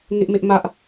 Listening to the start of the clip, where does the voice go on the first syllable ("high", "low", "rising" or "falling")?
high